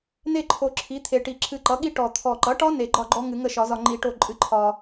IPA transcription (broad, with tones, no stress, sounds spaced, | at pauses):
n e˥˨ ǃʰ o˨˩ ǁʰ i˩˥ t̪ʰ e˨˩ ʈ i˨˩˦ ǁʰ ɨ˧ ǃ ʌ˩˥ ɠ i˦˥ ʈ ɔ˨˩ t̪ʰ ɔ˨˩ ǃ ʌ˩˥ ʈ ɒ˦˥ n e˨˩˦ ɡ͡ǃ ɒ˥˨ ɡ͡ǃ ɔ˦˥ ŋ ɨ˨˩˦ ŋ ə˥˨ ʃ ɒ˨˩˦ z ɒ˧ ŋ͡ǃ i˧ ʈ o˥˨ ǃʼ ɨ˩˥ ǃʰ ɒ˨˩